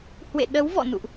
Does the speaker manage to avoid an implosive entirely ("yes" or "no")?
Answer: no